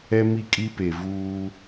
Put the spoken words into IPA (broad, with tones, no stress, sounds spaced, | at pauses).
ɛ˦ m i˦˨ kʼ i˦ p e˨ v uː˦